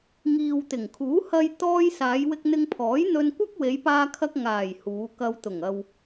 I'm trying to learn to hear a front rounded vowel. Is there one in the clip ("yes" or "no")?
no